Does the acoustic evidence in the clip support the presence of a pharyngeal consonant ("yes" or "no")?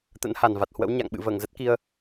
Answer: no